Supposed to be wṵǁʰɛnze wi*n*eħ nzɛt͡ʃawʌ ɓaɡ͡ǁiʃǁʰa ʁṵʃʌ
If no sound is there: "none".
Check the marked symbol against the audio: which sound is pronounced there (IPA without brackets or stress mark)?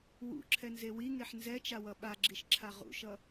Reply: ŋ